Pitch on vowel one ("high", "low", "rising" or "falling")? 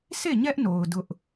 falling